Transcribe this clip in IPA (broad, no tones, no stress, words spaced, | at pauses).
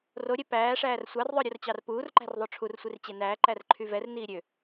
roɾʲɛ pæː ʂæːrsʷɑrðˤœ ɾʲort͡ɕɑrpuːrǃæ̤r ðˤoʈ͡ʂʰursʷir t͡ɕenæːǃær ǃʰyvɛrniː ɾʲø